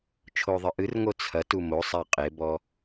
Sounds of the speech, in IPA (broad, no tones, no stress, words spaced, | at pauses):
t͡ʃʰoðˤɨʔɨrŋo t͡sʰɐ tumosˤa qʼebɔ